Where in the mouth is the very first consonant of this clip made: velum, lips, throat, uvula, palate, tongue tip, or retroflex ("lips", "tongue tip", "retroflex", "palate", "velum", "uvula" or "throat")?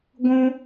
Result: velum